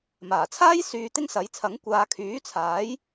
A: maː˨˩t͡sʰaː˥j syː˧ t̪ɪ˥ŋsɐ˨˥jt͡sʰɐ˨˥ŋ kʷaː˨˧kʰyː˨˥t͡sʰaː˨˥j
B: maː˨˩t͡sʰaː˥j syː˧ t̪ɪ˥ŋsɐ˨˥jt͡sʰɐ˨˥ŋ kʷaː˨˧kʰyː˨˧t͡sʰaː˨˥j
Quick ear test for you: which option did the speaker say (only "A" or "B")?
A